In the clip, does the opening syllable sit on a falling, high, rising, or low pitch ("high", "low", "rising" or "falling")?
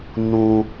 low